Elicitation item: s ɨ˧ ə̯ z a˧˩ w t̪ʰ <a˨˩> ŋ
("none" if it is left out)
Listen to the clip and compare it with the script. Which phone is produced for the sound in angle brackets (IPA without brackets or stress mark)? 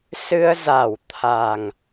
a˨˩